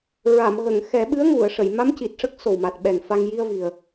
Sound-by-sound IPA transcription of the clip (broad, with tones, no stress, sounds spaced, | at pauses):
ɹ a˨˩˨ m ɣ ə˨˩˨ ŋ x ɛ˨˩˦ ɓ ɨ˧˥ ə̯ ŋ u˨˩˨ ə̯ ʂ ə˨˩˨ j m a˧˥ m c i˨˩ t̚ ʂ ə˦˥ k̚ s o˨˩ w m a˨˩ t̚ ɓ ɛ˨˩ ŋ f a˧ ŋ j i˧ ə̯ v i˨˩ ə̯